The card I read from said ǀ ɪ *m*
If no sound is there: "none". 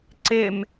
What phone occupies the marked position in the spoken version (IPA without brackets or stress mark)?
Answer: m